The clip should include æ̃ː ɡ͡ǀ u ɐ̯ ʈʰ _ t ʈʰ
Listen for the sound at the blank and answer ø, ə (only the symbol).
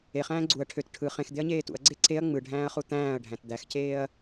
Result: ø